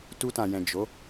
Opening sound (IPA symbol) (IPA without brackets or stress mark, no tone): t